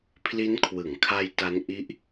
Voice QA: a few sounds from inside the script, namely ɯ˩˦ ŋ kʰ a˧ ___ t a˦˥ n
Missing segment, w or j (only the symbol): j